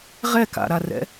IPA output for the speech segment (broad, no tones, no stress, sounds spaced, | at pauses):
ʁ ɛ k a̰ ɾ a r ɛ̰